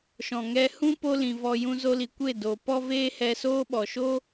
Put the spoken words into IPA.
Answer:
ʃɔ̃˨ŋɛ˧hũ˦ po˦lĩ˨vɔ˧ jũ˧zo˧li˨ kʷe˦˨ do˨ pɔ˦veː˦hɛ˧soː˦ ɓɔ˨ʃo˦

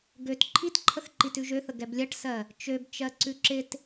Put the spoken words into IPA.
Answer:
ɡøt ǃʰitǃʰəxǃit ʉʒøθə ɡɛblʲɜʈsɜ | t͡ʃøbt͡ʃɜ ǀʉǁɪt

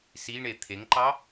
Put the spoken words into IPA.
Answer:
siɳe t̪ʰeŋǃɑ

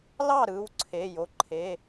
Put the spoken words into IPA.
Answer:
lɑ˥˩ ɾɯ˩˧˩wǀʰe˩˧˩ jo˩˧˩ǃʰe˩˧˩

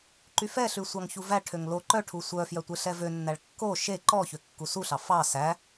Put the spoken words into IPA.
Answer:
ǃyfɛɬʉsʷɑŋ çuvæ ʈʰøŋlo ǃœʈʰu sʷœfjœtʷe ɬɛvønːæɭ kːo ʃe ǃɔçø kːusuɬɑ fɑ sæ

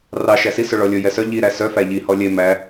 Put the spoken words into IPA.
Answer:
rɑ ʃæsi sɵɭɔlʲɵ jɛsœ ʎi ɾæsœ fæʎi hɔlʲe mæ

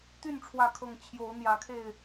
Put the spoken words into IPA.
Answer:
t̪y˥˨n ʈ͡ʂʰwä˥˨kʰɤ˥˨ŋ t͡ɕʰjo˨˦ʊ̯ n̪jä˨˦kʰe˥˨ɪ̯

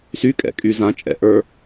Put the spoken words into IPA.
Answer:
sykʼɛ̰kʼy zãt͡ʃʼɛ̰ʔə˞

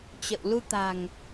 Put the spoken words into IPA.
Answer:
t͡ɕə̰˧˨w lu˧t̪a̤˨˩ŋ

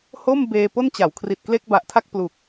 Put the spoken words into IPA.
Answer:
ho˥˩mbeː˧ po˥˩nt͡ɕa˩˦w kʰri˨˩t̚kle˥˩k̚ba˨˩ʔtʰa˥˩k̚ plu˨˩k̚

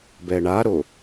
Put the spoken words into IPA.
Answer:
bɛɳaɾo

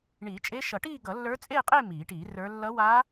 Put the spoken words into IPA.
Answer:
ɳiː˨˩˦t͡ʃʼe˧˥ʃʌ˨˩˦ʈiː˥˧ ɡʌ˨˩˦lːə˞˧˥t͡sʼeː˥˧qʼe˥˧ miː˨˩˦ʈiː˨˩˦rə˞˧˥ lːʌ˧˥wa˧˥

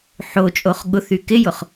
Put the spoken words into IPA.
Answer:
ħot͡ʃʼoχ ɠʊθy kɪjʊχ

